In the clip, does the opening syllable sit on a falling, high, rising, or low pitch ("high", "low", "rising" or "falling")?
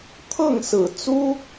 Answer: falling